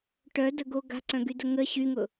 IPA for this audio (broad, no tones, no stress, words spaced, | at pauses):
ʈœdəɡo ɡa̤ǀœ̃ɡydə ŋə ɕyŋʊ